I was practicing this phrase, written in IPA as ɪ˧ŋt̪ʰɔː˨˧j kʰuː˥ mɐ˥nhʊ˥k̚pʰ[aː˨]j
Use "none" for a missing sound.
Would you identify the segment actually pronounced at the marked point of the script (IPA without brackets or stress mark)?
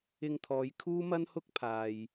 aː˨